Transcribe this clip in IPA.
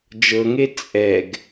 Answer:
d͡ʒ ɤ ŋ e t͡sʼ ɛ ɡ

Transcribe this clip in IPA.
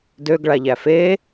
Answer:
d ø ɡ ɭ a ʎ æ f e

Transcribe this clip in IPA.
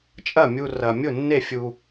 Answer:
t͡ʃʼ ɐ˥˩ mʲ u˧ r ɐ˧ mʲ ʊ˥˩ nː e˥˩ fʲ u˧

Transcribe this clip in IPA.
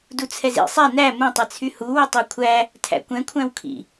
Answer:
d u t͡sʰ ɛ z ḭ sˤ ɛ n æ m ũ tˤ ɛ t͡sʰ y h u w ə tˤ e kʷʰ æ | tʰ æ̰ kʷ ɛ̃ kʷʰ æ̃ w kʰ ḭ

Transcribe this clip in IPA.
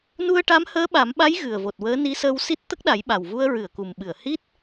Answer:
n u˧ ə̯ ʈ a˧˥ m h əː˧˥ ɓ a˨˩˦ m ɓ a˧˥ j ɣ ɨ˨˩ ə̯ v o˨˩ t̚ w əː˧˥ n i˧˥ s əː˧ w s i˦˥ t̚ t̪ ə˦˥ k̚ ɗ a˨˩˦ j ɓ a˨˩ w v u˧ ə̯ ɹ ɨ˨˩˨ ə̯ k u˨˩ m ɓ ɨ˨˩˨ ə̯ h i˦˥ t̚

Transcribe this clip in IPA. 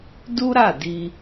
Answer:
d u˦ ɾ a˦˨ d i˧

